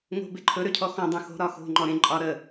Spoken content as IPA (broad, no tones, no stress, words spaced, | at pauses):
ŋo̤beǃʰɵ ɾøcʰɔxɔ̃ dˤõxo̤ ɾɒxo̤ ŋ͡ǃɔɾẽ ǃʼɒ ɾə